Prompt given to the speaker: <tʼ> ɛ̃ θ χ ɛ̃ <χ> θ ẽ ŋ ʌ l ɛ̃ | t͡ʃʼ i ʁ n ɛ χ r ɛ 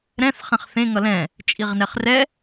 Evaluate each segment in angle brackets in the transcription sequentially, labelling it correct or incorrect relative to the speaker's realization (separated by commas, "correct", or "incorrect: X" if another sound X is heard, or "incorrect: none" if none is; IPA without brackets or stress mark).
incorrect: ɾ, correct